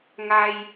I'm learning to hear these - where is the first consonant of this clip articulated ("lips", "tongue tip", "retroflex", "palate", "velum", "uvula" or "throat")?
velum